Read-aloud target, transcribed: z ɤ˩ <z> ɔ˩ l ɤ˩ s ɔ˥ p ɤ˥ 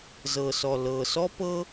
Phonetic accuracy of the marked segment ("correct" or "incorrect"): incorrect